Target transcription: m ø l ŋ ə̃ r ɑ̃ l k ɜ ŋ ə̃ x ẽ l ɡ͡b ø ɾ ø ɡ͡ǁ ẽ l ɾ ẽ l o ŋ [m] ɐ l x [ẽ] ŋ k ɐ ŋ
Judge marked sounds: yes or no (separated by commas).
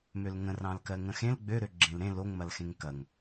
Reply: yes, yes